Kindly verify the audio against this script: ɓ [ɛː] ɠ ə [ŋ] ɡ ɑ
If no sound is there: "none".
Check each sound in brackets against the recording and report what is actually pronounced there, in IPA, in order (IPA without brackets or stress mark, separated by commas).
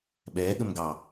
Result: ɛː, m